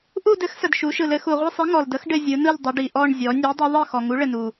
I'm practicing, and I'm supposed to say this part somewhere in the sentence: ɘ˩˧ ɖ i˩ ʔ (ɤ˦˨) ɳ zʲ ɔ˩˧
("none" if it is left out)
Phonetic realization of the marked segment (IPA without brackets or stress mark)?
ɔ˦˨